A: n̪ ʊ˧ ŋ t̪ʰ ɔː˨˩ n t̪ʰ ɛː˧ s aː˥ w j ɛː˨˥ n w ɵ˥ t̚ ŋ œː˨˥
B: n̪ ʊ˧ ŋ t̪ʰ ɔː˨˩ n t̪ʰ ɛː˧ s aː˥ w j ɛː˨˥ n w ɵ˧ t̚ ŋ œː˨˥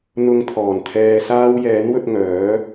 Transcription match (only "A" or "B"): B